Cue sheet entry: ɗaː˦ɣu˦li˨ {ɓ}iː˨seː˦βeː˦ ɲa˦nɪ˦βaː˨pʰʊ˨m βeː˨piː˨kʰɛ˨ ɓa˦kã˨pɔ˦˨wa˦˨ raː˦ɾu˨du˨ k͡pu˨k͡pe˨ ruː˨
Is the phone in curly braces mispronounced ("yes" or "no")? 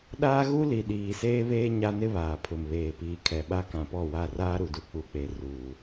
yes